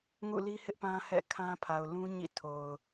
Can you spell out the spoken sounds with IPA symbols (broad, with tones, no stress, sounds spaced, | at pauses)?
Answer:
ŋ ṵ˦˨ l i˦ h ɪ˦ ʔ p ã˦ h ɛ̰˦˨ kʰ ã˦ pʰ a˨ ʊ̯ l ũ˦ ɲ ḭ˦˨ tʰ o˨ ʊ̯